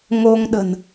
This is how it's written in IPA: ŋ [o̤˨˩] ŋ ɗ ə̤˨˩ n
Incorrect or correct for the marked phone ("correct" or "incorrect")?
incorrect